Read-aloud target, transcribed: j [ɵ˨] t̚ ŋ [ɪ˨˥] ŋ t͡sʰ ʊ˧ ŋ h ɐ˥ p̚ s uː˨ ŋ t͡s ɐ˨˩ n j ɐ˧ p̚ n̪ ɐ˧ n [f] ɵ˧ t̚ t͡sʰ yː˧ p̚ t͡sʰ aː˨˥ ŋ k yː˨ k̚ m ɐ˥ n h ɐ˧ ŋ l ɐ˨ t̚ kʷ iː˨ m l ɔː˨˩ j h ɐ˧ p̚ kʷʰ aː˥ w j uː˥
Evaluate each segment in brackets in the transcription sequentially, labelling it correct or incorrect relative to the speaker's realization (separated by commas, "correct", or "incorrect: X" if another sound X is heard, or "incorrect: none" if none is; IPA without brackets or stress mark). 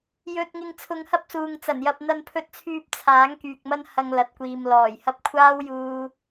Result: correct, incorrect: ɪ˧, incorrect: pʰ